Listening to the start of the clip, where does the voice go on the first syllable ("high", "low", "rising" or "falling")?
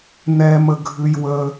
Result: low